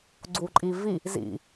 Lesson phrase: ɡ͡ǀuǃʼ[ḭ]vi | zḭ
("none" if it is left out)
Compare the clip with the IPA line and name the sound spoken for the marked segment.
i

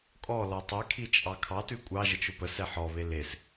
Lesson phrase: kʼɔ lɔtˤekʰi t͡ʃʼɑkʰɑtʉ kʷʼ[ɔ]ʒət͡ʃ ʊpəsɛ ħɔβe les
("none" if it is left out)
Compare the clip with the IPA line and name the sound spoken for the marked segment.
ɑ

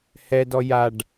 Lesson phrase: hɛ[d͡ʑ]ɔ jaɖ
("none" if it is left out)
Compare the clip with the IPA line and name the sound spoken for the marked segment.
d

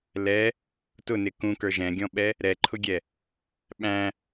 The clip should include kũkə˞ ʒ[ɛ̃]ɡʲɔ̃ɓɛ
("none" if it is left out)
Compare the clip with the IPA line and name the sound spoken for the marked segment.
ɛ̃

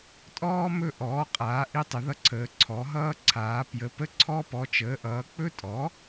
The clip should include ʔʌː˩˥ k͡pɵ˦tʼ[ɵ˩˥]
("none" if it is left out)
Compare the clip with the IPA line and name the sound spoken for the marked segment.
ɔ˩˥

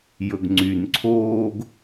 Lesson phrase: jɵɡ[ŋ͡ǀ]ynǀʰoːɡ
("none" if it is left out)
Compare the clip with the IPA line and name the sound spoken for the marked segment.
ŋ͡ǀ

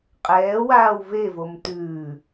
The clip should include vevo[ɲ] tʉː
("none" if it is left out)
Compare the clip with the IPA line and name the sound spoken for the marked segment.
m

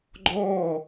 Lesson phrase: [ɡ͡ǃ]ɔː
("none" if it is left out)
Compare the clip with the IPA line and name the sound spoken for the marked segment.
ɡ͡ǃ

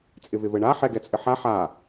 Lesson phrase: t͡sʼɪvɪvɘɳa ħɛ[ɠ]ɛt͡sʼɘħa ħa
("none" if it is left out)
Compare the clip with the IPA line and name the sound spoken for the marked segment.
ɡ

